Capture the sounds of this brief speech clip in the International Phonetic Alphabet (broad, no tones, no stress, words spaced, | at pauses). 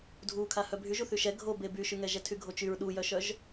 dʱukʰa hœbʱyʒ uθyʃɛ ɡʱobe byʃyŋɛ ʒɛtʰyɡʱot͡ʃyɹ ɗujœʃœʒ